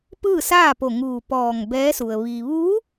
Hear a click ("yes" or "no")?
no